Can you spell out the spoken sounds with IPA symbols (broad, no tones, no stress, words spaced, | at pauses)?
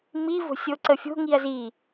mi vo̤sʲoǀəfʲo̤ ŋiɐ̯zi